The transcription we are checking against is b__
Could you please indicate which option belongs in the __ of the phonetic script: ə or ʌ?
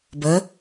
ə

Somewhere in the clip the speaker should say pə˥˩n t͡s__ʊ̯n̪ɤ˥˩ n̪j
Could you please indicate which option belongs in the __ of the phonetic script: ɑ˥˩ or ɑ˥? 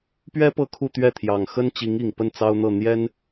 ɑ˥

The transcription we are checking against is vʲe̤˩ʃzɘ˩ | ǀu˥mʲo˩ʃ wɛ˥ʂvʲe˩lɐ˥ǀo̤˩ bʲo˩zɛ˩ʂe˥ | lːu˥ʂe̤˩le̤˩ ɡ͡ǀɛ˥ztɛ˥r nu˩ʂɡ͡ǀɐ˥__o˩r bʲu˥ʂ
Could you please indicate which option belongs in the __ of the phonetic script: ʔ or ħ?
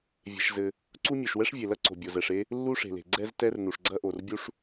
ʔ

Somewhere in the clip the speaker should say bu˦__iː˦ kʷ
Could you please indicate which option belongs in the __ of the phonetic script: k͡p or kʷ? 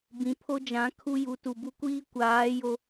kʷ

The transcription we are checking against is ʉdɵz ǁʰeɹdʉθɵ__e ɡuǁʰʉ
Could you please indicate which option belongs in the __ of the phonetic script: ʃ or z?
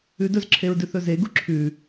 z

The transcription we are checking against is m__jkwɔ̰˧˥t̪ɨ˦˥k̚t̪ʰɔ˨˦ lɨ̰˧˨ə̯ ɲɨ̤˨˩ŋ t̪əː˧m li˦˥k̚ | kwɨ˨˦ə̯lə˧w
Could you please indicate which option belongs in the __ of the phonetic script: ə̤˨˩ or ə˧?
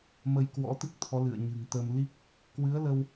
ə˧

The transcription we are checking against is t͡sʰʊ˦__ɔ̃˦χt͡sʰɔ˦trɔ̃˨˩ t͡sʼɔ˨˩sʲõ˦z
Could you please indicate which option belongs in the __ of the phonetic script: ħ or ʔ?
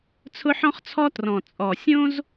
ħ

